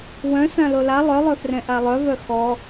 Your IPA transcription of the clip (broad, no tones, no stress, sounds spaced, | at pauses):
w œ̃ s ã l o l a lˠ œ lˠ œ f r ɛ̃ ʔ a lˠ œ v œ x ɔ